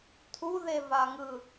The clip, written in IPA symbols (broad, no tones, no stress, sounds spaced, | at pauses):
tʰ u ð e v a ŋ ɯ